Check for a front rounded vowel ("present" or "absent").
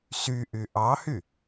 present